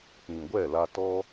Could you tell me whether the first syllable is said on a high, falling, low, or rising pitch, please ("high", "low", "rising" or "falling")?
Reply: low